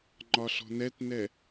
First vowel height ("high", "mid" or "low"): low